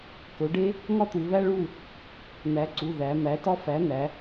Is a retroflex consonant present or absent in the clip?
present